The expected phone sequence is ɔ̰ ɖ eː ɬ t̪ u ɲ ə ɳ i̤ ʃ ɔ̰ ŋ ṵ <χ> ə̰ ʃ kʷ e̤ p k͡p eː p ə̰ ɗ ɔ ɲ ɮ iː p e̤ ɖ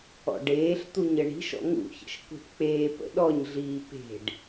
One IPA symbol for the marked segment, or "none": ç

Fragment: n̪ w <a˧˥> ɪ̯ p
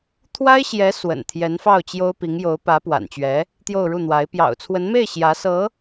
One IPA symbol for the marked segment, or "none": a˧˥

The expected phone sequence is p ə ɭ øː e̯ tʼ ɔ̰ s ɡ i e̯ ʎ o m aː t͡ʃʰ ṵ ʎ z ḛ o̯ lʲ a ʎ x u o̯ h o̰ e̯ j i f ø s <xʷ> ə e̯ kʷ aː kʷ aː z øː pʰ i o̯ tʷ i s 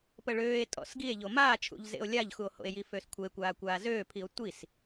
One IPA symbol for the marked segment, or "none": kʷʰ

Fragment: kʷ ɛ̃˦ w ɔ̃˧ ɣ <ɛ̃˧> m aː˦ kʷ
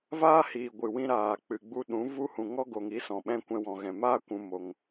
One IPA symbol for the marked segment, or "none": ɛ̃˨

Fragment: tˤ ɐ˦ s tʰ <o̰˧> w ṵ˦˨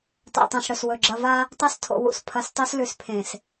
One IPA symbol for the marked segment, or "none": o̰˧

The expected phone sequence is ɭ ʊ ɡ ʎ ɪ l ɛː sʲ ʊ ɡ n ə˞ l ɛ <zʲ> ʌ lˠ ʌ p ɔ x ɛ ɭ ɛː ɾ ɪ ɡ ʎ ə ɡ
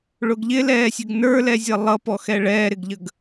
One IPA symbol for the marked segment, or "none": zʲ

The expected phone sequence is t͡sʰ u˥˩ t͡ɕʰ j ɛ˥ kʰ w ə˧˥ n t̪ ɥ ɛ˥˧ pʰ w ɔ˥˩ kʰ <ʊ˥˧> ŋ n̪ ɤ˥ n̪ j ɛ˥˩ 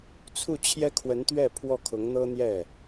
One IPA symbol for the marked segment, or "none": ʊ˧˥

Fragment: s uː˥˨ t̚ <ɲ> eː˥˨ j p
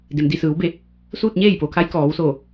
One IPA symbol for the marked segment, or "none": ɲ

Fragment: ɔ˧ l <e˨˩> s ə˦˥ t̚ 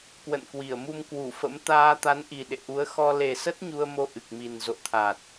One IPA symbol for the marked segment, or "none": e˨˩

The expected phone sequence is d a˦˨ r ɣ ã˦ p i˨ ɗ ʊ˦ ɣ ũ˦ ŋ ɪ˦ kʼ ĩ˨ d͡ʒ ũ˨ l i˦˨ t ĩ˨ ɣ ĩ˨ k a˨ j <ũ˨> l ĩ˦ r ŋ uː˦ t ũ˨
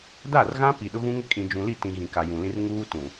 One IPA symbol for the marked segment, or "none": ũ˨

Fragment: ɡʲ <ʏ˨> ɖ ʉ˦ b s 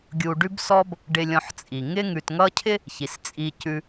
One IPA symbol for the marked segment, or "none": u˨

